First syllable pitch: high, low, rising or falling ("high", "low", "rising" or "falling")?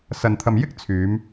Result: low